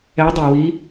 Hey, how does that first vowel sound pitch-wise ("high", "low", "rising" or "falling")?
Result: rising